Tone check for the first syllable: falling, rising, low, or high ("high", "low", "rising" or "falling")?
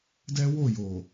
high